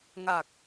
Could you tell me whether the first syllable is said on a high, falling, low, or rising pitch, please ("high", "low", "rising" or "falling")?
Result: low